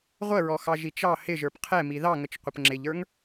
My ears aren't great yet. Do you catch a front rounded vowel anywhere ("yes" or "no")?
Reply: no